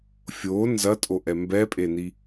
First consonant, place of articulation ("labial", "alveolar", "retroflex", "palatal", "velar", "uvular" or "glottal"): labial